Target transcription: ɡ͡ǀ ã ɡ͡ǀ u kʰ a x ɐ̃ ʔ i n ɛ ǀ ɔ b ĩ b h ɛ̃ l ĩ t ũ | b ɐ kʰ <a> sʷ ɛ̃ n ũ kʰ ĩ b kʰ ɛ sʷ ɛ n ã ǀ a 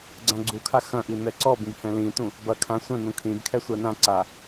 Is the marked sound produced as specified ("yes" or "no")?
no